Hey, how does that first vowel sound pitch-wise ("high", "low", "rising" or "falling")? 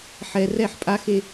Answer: high